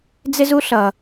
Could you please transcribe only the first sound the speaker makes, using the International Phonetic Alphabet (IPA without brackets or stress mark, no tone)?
d͡z